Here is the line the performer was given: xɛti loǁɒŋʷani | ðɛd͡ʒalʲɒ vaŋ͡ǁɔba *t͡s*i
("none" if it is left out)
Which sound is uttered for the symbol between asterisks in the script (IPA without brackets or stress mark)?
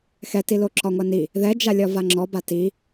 t